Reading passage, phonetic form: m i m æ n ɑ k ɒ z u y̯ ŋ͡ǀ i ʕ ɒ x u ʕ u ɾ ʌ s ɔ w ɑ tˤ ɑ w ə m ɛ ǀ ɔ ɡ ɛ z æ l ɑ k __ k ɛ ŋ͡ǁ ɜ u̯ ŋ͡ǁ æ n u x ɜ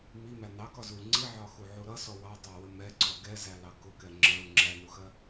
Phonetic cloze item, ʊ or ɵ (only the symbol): ʊ